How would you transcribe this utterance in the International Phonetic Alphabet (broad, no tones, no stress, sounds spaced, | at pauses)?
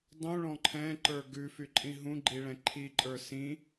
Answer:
dˤ ũ ɭ ɔ̃ ǃʰ ɛ̃ ǃ ə˞ ɡ ʉ f y ǃʼ ĩ ɦ ũ ɡ͡ǃ i ɭ ɛ̃ ǃʰ i ǃʼ ə˞ s ĩ